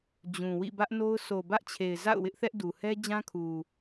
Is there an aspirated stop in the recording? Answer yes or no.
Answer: yes